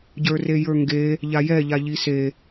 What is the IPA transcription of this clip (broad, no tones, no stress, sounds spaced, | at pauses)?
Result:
ɟ ə˞ r e j ə˞ ŋ ɡ e | ʎ a j ɛ ʎ a ʎ i s e